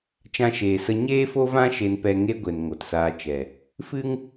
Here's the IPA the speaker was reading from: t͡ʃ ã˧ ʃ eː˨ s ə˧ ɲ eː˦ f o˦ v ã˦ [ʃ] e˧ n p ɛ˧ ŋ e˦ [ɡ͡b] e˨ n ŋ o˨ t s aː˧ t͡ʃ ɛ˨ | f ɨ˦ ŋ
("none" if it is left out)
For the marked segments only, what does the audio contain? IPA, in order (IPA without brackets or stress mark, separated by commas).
ʃ, ɡʷ